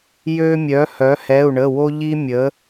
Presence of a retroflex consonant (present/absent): present